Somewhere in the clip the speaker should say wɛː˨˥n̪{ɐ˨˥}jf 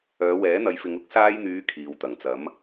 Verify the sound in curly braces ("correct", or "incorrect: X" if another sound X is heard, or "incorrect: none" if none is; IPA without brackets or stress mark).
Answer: correct